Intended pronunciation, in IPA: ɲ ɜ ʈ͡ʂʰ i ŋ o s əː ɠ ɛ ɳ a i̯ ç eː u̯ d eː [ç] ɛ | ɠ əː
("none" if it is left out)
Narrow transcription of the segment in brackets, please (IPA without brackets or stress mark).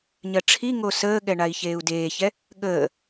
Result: ç